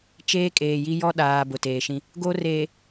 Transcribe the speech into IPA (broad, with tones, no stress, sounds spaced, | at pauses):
t͡ʃ eː˦ kʼ eː˨ j i˦ j ɔ˦ ɗ aː˨ b ʊ˨ t eː˨ ʃ ĩ˦ | ɡ o˦ r eː˨